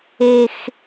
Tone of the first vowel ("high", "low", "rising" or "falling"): high